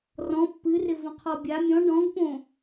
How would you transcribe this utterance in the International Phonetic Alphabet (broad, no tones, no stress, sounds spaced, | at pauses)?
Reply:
r ɔ̃ pː ɨ r ɪ v ə̃ qʰ ɔ bʲ a mʲ ɔ̃ ɖ ɔ̃ ɡ p õ